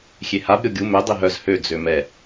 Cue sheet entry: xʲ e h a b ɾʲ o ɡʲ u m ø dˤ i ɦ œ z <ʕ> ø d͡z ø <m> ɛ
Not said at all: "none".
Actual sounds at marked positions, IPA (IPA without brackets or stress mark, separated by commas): h, m